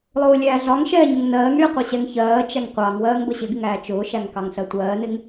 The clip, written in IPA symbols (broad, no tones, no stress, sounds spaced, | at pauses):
lˠ ʊː lʲ æː ɮ ɒ ŋ ʃ ɛː ɲ ʊ ŋ n ɜː ŋ ɭ i qʷ ɛ ɕ ɛ ŋ ç ɜː t͡ʃ æ ŋ qʷ ɑ ŋ w ɜː ŋ b ə ɕ ɪ ɡ ɪ ŋ æː t͡ʃ ʊː ʃ æ ŋ k ɑ ŋ ɬ ɜ tʷ ɜː n ɪ ŋ